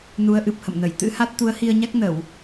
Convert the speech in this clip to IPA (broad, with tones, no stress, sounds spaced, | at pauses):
n u˨˦ ə̯ ʔ ɨ˨˩ p̚ h ə̰˧˨ m n ə˧˩ j t̪ ɨ̰˧˥ h a˦˥ t̚ t̪ u˨˦ ə̯ h i˧ ə̯ ɲ a˦˥ k̚ n ə˧˩˨ w